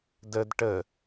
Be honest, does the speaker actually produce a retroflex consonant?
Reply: yes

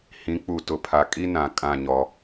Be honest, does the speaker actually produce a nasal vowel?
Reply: yes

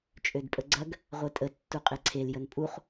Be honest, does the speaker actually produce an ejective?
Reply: yes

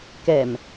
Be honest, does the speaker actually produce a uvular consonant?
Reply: no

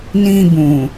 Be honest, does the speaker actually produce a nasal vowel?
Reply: yes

